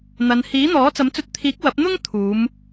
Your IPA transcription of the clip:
n̪ ɐ˨ n h iː˨˥ n̪ ɔː˨˥ t͡s ɐ˨˥ m t͡s ɵ˧ t̚ t̪ʰ iː˨˥ k̚ w ɐ˨˥ p̚ n̪ ʊ˥ ŋ t̪ʰ uː˨˧ m

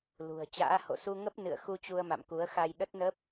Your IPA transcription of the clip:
l ṳ˨˩ ə̯ t͡ɕ a̰ː˧˥ h o̰˧˨ s u˧ ŋ ə˦˥ p̚ n ɨ̰˧˨ ə̯ x u˧ t͡ɕ u˧ ə̯ m a̰˧˨ m k u˨˦ ə̯ x a˧ j ɗ ə˦˥ t̚ n ə˦˥ p̚

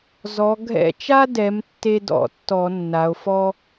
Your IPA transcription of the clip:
z ɔ˩˧ ɡʱ ɛ̰˧˩ t͡ʃ a˦ d ɛ˩˧ m tː e˦ d ɔ̰˩˧ tː ɔ˧˩˧ nː a˩˧ o̯ f ɔ˦

